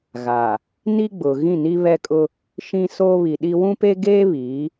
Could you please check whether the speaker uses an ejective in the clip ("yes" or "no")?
yes